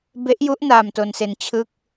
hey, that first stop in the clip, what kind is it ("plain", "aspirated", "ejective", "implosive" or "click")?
plain